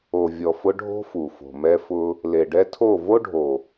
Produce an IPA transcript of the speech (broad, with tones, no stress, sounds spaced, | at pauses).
o˨ vʲ ɔ˨ f ʊ˧ ɖʱ o̤˦ f u˨ f o̤˨ m ɛ˧ f ʊ˧ | l e˨ ɖ ɛ˧ tʰ o˦˨ v o˦ ɖʱ o˨